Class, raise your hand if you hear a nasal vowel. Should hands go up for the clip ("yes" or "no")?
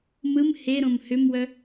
yes